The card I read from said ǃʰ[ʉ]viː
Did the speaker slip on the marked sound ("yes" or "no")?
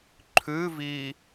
no